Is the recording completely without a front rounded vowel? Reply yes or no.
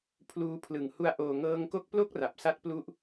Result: yes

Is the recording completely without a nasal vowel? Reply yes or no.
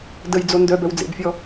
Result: yes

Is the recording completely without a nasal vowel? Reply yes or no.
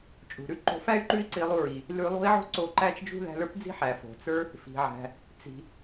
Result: yes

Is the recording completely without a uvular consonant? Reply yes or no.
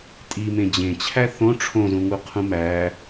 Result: no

